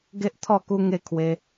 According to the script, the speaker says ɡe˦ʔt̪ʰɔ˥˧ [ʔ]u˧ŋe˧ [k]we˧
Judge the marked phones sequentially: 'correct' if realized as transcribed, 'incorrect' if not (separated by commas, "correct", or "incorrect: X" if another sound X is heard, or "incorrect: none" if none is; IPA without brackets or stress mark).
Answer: incorrect: k, incorrect: kʰ